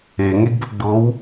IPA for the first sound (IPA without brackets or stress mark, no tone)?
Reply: e